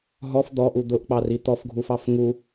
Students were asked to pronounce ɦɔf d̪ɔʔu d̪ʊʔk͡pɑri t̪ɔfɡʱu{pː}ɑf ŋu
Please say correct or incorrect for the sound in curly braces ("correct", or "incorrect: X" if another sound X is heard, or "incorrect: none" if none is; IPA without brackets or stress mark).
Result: incorrect: f